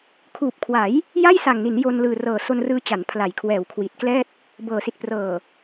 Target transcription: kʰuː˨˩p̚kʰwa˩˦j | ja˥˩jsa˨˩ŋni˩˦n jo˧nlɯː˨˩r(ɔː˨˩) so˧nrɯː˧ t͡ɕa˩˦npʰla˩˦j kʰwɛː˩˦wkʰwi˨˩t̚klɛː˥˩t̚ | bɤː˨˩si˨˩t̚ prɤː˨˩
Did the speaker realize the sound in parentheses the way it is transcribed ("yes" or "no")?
no